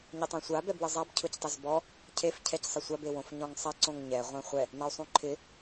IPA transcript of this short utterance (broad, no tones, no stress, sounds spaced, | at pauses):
ɲ ɪ tˤ ɛ̃ sʷ a b ɛ b w ɪ zˤ a b cʰ ʊ c tˤ ɪ z b ɔ | cʰ e f cʰ ɛ c sˤ ɪ sʷ a b e w õ f ɲ ɔ̃ ŋ sˤ a ǀ õ ŋ ɲ ɛ ʁʷ ɛ̃ χʷ ɛ | n a u̯ sˤ ũ ǃʰ ɪ